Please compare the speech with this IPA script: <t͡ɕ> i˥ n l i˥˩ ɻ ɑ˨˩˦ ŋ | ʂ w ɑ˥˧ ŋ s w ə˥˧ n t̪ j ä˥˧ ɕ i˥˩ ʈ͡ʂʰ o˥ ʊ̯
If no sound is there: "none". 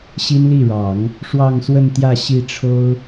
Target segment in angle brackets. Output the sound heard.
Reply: ɕ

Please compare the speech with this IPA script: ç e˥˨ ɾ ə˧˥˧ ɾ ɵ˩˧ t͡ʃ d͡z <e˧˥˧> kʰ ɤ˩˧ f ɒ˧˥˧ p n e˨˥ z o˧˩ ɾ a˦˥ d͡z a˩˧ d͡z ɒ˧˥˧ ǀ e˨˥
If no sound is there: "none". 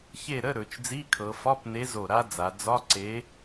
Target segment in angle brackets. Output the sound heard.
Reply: i˧˥˧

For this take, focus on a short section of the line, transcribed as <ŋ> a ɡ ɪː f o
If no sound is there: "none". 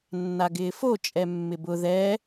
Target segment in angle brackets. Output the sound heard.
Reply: nː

